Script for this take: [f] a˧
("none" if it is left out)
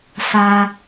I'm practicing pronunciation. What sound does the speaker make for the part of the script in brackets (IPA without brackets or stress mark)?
f